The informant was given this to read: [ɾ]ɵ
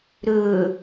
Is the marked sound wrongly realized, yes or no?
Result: no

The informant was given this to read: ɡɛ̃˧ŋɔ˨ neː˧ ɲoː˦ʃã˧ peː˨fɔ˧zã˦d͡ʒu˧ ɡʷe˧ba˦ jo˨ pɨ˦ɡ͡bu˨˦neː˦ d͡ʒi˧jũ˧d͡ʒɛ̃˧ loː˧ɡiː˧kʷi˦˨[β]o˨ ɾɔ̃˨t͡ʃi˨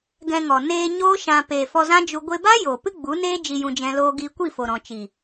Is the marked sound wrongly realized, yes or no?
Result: yes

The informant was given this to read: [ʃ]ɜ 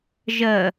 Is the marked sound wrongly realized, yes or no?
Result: yes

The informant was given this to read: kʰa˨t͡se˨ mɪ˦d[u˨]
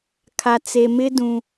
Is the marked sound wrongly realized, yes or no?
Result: yes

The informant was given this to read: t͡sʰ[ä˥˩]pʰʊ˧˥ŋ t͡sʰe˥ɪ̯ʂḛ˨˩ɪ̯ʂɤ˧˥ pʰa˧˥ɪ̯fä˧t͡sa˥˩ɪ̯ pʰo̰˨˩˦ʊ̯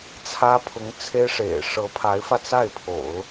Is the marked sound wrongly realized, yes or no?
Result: yes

